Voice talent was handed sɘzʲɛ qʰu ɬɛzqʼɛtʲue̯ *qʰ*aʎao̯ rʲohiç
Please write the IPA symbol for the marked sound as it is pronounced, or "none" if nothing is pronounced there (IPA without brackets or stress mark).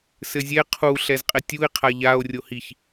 qʰ